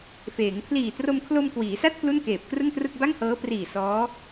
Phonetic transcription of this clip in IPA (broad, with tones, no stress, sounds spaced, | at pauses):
f eː˩˦ ŋ pʰ l iː˨˩ t r o˧ m kʰ l o˧ m k w iː˩˦ s a˥˩ t̚ p l u˥˩ n k eː˨˩ p̚ k r ɯ˥˩ ŋ t r ɯ˥˩ k̚ b a˥˩ ŋ h ɤː˦˥ p r iː˨˩ s ɔː˦˥